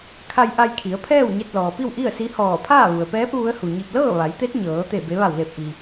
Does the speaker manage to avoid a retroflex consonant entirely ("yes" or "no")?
yes